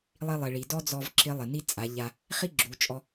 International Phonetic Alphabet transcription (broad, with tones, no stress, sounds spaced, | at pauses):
lˠ i˧ lˠ ɪ˩ ɭ i˩ d ɔ˥ d͡z ɔ˧ v ǁ ɪ˧˥ lˠ ɪ˩ n i˥ t͡sʼ a˩˧ ʎ a˧ | χ i˥ ɡ͡ǁ u˩˧ t͡ʃʼ ɔ˧